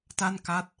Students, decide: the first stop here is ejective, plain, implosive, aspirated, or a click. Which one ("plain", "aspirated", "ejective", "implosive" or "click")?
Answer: plain